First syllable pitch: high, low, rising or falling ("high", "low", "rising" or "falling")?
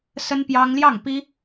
high